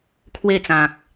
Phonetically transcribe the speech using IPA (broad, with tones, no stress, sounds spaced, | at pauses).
kʰ w e˥˧ t͡s ã˨ k̚